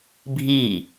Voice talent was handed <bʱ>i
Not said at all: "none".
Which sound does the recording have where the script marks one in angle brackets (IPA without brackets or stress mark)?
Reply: bʱ